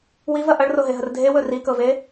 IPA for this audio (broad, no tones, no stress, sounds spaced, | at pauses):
w i v ɐ ʔ ɐ ɭ r o ɦ e ɦ ə r dʱ e w ɵ r i k ɤ v e